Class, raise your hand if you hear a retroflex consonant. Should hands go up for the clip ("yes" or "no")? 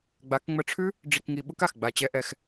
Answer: yes